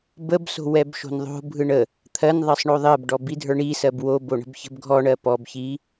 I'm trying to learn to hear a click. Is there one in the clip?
no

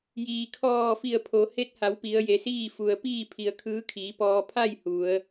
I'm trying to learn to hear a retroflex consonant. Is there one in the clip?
no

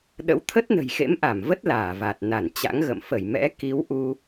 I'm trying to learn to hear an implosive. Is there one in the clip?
yes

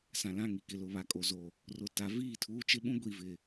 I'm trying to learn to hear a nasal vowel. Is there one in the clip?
yes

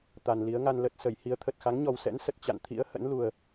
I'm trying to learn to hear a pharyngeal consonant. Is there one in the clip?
no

